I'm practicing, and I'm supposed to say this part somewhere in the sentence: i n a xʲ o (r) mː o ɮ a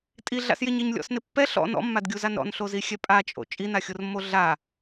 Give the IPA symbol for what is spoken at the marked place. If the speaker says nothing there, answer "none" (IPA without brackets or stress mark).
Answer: r